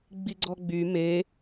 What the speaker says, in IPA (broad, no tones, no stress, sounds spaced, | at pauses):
ɡ͡b i ɡ͡ǀ ɔ ɡ͡b y m e